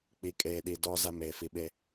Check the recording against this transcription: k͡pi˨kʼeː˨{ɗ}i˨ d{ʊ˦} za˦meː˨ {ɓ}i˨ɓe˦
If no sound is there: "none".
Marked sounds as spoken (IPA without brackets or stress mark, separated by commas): ɗ, ɔ˦, f